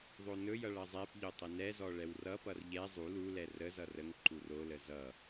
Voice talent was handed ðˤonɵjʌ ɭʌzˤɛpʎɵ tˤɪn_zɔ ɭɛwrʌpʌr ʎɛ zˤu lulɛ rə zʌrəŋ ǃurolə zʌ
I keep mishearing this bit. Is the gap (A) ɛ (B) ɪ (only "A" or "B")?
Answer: A